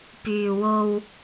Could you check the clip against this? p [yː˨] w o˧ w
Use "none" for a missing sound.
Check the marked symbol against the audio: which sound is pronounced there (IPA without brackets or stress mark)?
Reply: yː˨